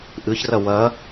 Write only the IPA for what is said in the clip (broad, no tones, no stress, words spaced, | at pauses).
ʔɨçrɐ wɐ